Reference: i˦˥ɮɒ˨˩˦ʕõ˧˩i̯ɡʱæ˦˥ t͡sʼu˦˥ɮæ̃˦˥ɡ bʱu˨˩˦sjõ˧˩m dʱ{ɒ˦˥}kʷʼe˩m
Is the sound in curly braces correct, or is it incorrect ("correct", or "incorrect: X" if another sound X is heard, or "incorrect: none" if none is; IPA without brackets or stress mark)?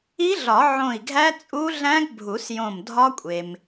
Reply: correct